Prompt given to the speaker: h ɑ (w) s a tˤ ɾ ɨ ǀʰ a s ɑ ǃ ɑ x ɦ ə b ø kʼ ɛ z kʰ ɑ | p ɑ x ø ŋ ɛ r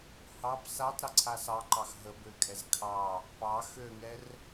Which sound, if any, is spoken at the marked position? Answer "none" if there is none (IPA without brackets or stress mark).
b